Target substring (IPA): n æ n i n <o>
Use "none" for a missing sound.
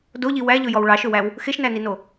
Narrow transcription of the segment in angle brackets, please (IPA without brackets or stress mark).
o